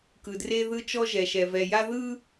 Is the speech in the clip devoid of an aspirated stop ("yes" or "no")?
yes